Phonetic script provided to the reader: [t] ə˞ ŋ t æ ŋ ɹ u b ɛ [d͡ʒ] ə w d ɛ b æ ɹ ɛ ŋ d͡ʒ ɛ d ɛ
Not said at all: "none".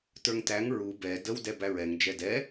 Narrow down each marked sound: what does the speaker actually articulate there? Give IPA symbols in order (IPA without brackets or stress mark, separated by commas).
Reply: t, d